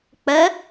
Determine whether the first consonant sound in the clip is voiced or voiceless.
voiceless